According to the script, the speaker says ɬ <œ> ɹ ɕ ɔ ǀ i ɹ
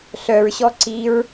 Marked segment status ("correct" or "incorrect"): correct